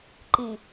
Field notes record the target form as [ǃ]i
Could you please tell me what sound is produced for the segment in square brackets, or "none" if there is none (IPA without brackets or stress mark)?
ǃ